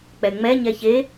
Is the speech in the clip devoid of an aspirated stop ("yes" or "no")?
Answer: yes